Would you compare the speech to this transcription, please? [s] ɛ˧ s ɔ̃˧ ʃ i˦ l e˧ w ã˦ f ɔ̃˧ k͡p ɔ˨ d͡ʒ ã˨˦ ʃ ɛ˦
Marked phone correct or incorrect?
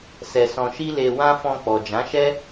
correct